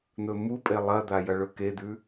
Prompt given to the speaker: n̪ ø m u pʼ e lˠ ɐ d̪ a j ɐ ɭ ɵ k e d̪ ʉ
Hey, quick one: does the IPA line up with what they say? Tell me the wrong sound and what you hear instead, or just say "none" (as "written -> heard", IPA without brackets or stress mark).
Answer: ø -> ɵ